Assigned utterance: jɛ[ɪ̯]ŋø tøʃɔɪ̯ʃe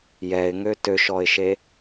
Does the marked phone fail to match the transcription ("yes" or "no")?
no